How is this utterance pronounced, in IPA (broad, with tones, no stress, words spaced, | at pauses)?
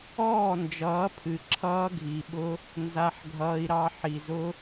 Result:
ɔː˦˨nd͡ʒʌː˨˦pʰɨ˨ ǁʰʌː˧ɡʱi˨ɓʊ˧ | nza˧ħɡʱʌː˧i̯ɾɑ˧ ħi˨zʊ˧